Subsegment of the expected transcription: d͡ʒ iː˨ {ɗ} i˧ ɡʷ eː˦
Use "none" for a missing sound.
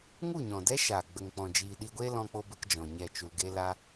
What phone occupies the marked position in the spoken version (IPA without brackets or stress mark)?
ɗ